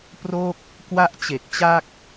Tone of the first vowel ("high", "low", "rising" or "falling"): falling